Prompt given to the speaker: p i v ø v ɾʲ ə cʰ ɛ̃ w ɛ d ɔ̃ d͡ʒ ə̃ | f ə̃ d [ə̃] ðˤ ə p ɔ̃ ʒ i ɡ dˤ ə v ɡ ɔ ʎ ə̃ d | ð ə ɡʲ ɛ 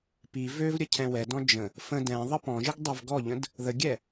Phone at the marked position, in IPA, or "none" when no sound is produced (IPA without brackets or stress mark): ɛ̃